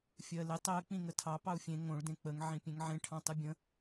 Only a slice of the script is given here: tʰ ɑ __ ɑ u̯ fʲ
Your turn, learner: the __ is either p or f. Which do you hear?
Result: p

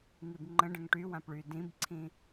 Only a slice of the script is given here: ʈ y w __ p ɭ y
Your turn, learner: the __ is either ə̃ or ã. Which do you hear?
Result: ã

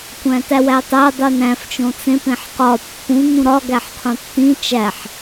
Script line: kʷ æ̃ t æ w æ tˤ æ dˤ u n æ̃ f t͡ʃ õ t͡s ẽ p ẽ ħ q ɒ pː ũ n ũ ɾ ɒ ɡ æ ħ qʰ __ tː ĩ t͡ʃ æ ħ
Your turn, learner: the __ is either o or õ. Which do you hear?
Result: õ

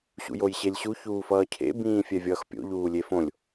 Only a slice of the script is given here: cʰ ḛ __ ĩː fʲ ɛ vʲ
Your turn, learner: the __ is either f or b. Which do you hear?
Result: b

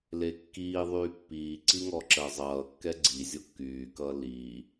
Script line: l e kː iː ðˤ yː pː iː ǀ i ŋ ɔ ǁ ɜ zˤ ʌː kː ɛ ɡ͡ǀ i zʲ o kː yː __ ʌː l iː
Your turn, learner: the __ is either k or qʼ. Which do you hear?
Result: k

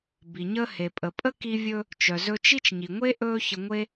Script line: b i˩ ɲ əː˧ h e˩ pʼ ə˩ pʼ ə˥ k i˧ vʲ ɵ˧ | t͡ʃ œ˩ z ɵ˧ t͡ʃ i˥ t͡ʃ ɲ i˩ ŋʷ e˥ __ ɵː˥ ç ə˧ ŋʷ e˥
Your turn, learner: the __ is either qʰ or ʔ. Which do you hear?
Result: ʔ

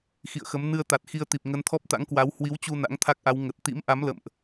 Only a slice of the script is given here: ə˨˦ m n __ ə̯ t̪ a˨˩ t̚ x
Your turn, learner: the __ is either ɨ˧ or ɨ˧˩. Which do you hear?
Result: ɨ˧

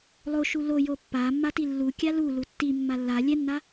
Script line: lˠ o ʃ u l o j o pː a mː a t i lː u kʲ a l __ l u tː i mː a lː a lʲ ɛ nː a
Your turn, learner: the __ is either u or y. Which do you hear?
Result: u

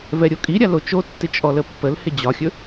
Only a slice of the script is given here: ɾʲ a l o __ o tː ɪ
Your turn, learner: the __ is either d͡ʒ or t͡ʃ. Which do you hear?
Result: t͡ʃ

